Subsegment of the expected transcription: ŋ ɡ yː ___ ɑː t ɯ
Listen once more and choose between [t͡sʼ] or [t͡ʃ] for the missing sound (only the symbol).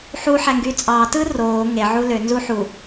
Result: t͡sʼ